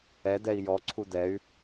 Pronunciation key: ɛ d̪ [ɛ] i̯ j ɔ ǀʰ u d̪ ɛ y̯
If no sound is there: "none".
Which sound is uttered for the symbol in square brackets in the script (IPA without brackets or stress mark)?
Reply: ɛ